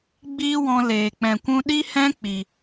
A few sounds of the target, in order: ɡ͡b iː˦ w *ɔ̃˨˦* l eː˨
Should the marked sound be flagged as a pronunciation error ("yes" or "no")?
yes